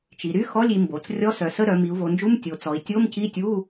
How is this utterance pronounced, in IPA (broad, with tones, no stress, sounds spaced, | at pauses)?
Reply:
t͡ʃ i˩˧ ɾ y˧˥˧ x ɔ˧˥˧ lʲ i˩˧ m b o˩˧ t͡s rʲ ɔ˧˥˧ s œ˩˧ s ə˧˥˧ ɾ œ˩˧ m i˩˧ u̯ v o˩˧ n d͡ʒ u˧˥˧ m tʲ o˩˧ t͡s ɔ˩˧ i̯ tʲ o˧˥˧ m c i˧˥˧ tʲ u˧˥˧